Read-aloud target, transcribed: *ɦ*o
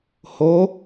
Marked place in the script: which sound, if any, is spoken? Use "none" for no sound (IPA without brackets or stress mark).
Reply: h